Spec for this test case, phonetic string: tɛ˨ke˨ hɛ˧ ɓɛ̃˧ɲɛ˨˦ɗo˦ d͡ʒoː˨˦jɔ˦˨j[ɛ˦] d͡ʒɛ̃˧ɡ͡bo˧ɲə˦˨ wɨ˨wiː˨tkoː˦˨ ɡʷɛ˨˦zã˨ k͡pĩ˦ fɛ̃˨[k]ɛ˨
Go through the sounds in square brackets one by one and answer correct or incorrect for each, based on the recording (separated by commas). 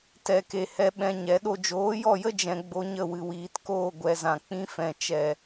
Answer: incorrect, incorrect